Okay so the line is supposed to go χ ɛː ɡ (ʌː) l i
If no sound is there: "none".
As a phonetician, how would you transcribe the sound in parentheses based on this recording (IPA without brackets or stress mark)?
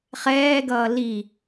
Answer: ʌː